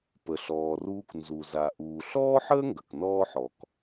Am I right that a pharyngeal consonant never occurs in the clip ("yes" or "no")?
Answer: no